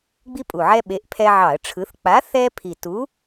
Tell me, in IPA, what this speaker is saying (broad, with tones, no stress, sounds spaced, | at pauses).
ɡ͡b i˦ pʼ u˨˩ ʕ ɛ˦ ɓ e˨˥ ʔ pʰ ɛ˦ ʕ ɑ˧˩˧ ə̯ ʈ͡ʂʰ ɯ˨˥ θ k͡p a˨˥ θ ɛ˦ pʰ i˨˩ t u˨˥